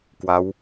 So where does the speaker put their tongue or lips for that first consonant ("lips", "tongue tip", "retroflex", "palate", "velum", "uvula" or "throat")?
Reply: velum